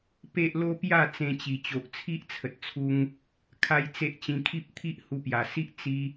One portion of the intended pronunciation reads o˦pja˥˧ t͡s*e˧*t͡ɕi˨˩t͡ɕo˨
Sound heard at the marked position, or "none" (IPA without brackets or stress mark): ẽ˧